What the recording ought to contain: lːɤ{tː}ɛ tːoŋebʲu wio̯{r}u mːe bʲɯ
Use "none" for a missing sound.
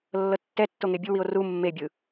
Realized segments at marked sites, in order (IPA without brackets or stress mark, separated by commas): tː, r